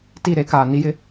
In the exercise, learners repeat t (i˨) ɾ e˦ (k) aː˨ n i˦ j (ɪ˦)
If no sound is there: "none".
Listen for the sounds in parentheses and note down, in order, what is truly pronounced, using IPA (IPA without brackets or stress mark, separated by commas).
i˦˨, k, ɪ˦